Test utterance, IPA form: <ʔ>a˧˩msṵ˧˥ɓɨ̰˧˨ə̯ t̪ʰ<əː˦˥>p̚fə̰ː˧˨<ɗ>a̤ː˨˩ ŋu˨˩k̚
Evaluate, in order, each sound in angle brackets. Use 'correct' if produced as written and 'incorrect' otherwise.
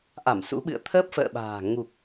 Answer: correct, correct, incorrect: ɓ

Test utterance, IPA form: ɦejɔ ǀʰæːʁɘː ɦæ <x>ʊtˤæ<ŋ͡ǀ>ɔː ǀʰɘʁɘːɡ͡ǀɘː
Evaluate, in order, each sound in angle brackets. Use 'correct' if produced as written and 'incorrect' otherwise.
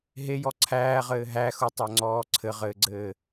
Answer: correct, correct

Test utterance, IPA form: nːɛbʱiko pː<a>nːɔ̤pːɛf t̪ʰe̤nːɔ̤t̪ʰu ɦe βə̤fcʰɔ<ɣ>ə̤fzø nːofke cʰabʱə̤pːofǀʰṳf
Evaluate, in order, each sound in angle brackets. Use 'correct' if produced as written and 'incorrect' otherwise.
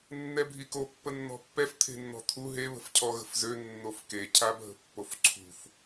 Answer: incorrect: ə, correct

